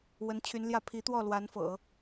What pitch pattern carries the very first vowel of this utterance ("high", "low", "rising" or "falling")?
rising